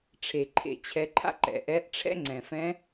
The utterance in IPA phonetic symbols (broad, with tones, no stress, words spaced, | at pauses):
ʈ͡ʂʰe˩ǃʰḛ˩˧t͡ɕʰɛ˩˧ǃʰa̰˥ ǃɛ̰˩ʔɛ˧˥ʔ ʈ͡ʂʰɛ̰˥ŋ͡ǀɛ̃˩fɛ̃˧˥